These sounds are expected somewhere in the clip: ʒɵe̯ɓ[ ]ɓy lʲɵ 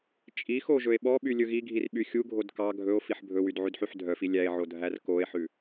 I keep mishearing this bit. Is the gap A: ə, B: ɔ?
B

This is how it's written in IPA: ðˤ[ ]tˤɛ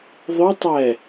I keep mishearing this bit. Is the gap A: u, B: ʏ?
B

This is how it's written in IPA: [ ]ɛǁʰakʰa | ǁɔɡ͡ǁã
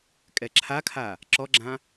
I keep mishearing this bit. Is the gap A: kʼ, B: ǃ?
A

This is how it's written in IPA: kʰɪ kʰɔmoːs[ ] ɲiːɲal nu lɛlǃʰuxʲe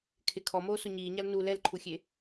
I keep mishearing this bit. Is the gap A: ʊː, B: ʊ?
B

